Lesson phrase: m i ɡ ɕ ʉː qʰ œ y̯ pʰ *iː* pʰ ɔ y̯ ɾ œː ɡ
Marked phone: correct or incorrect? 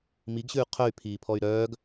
correct